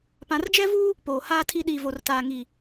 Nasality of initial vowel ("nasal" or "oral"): nasal